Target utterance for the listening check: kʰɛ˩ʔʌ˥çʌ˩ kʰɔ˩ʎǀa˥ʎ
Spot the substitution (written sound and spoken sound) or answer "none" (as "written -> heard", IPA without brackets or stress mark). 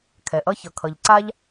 ɔ˩ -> ʌ˩